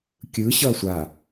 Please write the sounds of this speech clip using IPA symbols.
kʲ ɯ ɕ ʌː sʷ a

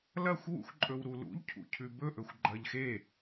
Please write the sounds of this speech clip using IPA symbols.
l ɐ xʷ w ṵ x ǃʼ ɵ w ɾ u l ṵ ʎ cʰ ṵ cʰ ʉ b ɵ ʔ ɵ xʷ ɡ͡ǃ ɐ ʎ x e

